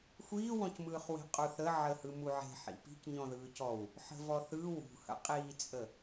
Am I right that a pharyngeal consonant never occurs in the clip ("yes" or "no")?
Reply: no